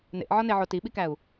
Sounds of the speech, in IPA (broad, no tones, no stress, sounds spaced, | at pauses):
n ḛ ʔ ʕ ɒ n e ʕ o t i ɓ i k æ u̯